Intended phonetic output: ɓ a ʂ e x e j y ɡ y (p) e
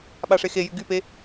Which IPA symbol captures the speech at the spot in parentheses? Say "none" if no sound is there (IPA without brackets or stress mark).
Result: p